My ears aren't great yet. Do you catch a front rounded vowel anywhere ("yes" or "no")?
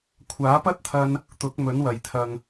no